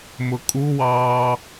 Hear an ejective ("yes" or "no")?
yes